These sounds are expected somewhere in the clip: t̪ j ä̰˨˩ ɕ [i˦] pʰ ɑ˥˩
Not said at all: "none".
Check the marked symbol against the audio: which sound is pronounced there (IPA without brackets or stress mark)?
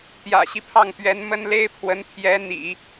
i˦